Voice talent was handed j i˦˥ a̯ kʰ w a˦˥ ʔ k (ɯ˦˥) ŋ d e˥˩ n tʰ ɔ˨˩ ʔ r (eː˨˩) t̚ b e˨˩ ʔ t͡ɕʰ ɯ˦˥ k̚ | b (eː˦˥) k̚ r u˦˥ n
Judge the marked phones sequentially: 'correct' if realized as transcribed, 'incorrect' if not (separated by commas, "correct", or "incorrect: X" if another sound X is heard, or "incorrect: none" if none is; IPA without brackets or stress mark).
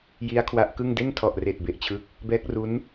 incorrect: ɯ˥˩, correct, incorrect: ɛː˦˥